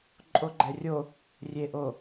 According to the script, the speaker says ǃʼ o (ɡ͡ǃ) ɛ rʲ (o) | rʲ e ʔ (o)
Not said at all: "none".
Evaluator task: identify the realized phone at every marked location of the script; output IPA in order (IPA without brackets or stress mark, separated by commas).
ɡ͡ǃ, o, o